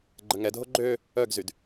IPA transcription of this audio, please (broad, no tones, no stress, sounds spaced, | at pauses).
ɡ͡ǃ ə ŋ ɛ dʱ o ɡ͡ǃ ø | œ ɡ z y d